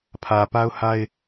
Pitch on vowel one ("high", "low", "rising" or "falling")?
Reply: low